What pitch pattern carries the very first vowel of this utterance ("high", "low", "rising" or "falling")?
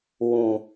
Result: low